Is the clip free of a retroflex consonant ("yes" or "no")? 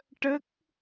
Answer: no